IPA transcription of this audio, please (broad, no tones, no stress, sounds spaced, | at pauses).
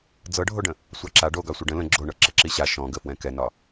d͡z ɤ ɖʱ o ɖ ə̃ | sʷ ɑ ǁ a ɖ o ɡ ɑ sʷ ə ɖ ə̃ l ə̃ ɡ͡ǁ o ɳ ɤ ǁ ə ǁ i ɕ a ʃ ɔ̃ ɡ ə f w ɛ̃ k ɛ n ɒ